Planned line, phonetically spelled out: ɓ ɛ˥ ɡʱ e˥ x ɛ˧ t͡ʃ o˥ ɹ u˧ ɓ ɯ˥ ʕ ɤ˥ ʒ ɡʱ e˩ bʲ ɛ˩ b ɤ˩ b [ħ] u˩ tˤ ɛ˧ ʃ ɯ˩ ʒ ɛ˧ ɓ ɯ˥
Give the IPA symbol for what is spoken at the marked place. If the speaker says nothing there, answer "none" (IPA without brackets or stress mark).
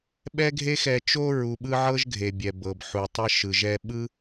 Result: ħ